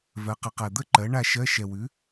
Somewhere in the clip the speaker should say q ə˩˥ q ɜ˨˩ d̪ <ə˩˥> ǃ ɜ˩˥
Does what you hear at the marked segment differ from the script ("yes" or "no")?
yes